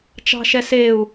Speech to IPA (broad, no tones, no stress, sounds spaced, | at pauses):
t͡ʃ ɑ̤ ʃ ɛ s e u̯